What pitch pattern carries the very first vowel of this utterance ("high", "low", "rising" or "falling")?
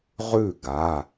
falling